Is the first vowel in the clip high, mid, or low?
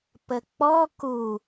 mid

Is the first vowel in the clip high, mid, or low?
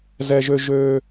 mid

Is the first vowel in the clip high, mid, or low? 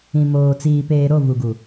high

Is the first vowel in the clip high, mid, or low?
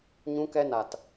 high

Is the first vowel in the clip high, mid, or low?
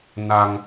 low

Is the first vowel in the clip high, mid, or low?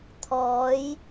mid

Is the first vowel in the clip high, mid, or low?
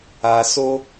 low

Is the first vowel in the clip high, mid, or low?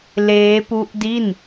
mid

